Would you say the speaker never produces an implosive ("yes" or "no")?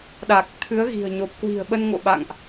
no